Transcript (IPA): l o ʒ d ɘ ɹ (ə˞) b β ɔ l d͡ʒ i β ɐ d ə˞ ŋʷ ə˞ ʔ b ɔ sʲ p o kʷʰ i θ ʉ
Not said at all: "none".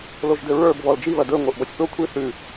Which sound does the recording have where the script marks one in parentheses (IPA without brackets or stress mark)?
ə˞